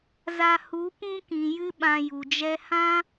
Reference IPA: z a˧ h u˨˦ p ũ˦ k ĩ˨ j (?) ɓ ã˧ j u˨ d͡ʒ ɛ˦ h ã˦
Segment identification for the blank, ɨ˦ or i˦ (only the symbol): ɨ˦